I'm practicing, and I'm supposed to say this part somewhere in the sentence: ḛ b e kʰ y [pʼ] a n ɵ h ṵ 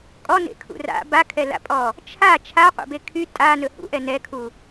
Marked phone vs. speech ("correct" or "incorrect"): incorrect